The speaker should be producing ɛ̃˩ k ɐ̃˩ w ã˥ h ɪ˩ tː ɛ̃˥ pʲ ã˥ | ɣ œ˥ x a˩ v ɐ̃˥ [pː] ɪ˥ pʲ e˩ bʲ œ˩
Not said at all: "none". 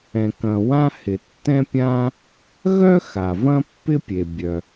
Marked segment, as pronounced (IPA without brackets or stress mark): pː